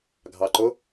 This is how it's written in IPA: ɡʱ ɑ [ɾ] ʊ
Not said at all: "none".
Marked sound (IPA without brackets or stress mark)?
ǃ